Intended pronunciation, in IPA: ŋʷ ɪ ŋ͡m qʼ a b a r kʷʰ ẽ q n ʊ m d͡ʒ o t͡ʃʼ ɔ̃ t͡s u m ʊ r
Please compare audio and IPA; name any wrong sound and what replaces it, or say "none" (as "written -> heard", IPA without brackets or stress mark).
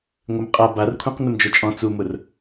ŋ͡m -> m